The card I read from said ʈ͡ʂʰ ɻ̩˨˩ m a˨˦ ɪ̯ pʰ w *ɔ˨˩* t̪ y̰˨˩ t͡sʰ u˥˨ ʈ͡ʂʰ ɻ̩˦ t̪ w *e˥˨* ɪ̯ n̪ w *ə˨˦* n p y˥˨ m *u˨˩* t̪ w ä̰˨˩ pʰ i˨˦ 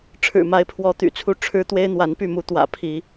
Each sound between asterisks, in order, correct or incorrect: incorrect: ɔ˨˦, incorrect: e˦, incorrect: a˨˦, incorrect: u˨˦

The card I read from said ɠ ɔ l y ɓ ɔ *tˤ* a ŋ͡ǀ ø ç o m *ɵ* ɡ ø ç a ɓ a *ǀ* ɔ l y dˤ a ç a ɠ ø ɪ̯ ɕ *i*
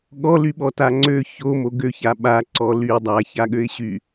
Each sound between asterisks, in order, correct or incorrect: incorrect: t, incorrect: o, correct, incorrect: y

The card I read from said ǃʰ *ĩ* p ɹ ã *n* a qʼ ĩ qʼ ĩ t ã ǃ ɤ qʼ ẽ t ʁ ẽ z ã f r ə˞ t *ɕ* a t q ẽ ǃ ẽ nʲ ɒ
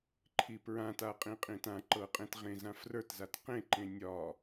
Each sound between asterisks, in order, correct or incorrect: incorrect: i, incorrect: t, incorrect: z

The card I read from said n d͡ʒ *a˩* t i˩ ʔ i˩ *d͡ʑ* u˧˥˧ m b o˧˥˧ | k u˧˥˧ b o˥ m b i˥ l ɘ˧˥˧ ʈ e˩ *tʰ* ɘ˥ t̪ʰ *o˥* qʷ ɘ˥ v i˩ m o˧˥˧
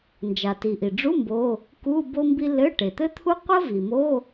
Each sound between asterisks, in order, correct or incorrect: correct, incorrect: ɖ͡ʐ, incorrect: t̪, incorrect: u˥

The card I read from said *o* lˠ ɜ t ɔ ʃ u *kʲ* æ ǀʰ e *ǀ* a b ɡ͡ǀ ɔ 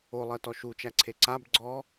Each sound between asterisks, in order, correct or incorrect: correct, incorrect: t͡ʃ, correct

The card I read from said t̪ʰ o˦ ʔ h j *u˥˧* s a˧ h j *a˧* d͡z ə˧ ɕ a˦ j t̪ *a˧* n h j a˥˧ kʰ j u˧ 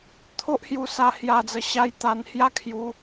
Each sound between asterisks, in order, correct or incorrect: incorrect: u˧, correct, correct

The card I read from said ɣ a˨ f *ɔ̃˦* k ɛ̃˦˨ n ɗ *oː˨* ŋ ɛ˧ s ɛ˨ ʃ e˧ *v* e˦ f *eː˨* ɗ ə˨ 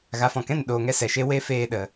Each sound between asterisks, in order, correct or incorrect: incorrect: ɔ̃˨, correct, incorrect: w, incorrect: eː˧

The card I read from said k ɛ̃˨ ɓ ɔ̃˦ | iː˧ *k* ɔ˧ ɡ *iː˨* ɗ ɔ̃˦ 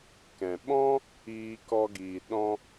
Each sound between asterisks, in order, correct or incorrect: correct, correct

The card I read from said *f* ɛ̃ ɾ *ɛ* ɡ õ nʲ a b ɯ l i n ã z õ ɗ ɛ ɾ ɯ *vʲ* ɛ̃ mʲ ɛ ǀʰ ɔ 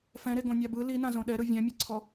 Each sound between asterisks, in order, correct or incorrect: correct, incorrect: e, correct

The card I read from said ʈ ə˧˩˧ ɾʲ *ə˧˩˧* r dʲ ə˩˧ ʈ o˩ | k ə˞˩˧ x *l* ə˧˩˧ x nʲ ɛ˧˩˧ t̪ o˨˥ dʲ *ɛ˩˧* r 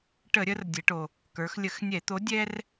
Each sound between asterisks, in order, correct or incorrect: incorrect: ə˩˧, incorrect: lʲ, incorrect: ɛ˦

